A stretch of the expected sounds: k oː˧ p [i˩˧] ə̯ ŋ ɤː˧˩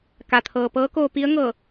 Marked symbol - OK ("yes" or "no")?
no